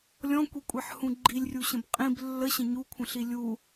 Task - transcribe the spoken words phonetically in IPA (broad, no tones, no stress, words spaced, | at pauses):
lʲɔ̃kʷikʷʼeħhũ ɡ͡ǃilʲrʲuɕə̃b qʼĩb lːəɕə̃ ɲukʷʰə̃ɬi lʲu